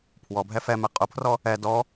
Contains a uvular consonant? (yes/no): yes